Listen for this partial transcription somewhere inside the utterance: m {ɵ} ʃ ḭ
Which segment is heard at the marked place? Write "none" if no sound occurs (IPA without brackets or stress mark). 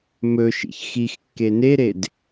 ɵ